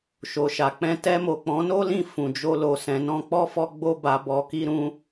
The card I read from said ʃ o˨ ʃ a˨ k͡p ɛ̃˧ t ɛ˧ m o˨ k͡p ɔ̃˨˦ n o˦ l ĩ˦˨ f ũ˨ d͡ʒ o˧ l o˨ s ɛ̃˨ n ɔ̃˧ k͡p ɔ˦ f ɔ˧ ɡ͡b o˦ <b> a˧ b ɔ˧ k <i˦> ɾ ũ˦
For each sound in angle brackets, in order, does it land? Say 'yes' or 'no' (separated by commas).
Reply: yes, yes